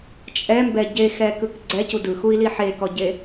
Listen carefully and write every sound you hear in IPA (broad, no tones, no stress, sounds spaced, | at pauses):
t͡ʃʼ ɛ m b ɛ ɟ e x ɛ k ɯ k ɡ͡ǀ ɛ c u d ɯ x u i̯ l i ħ e k ɔ ɟ e